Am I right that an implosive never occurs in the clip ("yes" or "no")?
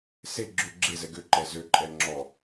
yes